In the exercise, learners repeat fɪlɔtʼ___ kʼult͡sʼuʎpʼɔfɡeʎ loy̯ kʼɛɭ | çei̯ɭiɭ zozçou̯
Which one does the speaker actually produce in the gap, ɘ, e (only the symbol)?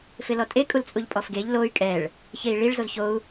e